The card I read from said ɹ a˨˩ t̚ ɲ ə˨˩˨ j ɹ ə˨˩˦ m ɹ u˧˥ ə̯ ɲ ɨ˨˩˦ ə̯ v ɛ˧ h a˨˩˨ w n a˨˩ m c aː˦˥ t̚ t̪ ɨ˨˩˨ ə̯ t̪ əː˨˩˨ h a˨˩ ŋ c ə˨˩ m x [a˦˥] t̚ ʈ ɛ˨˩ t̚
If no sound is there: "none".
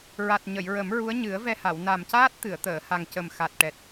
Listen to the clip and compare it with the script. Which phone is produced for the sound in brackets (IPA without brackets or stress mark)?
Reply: a˨˩